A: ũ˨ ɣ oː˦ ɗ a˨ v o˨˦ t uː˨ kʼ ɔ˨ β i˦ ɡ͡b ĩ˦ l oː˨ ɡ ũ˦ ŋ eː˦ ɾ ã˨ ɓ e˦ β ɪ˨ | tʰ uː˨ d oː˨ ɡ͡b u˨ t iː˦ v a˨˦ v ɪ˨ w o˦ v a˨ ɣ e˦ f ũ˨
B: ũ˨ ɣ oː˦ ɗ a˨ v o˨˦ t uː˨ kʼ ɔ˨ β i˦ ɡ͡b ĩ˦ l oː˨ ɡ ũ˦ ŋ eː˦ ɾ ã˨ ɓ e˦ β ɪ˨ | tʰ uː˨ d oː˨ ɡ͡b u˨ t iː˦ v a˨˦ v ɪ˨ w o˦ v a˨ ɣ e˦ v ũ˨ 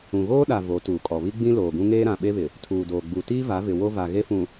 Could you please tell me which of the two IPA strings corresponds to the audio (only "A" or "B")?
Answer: A